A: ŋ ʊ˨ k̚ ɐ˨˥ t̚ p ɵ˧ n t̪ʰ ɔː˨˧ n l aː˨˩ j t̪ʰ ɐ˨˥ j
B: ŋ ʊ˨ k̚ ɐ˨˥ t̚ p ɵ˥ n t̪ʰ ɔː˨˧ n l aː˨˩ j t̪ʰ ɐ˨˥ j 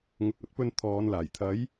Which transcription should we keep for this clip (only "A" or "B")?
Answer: A